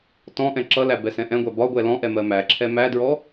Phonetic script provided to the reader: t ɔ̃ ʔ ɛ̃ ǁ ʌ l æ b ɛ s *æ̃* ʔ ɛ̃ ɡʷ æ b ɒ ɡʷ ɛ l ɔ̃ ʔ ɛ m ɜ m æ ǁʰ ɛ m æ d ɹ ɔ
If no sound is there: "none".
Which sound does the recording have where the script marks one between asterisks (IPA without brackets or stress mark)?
ɛ̃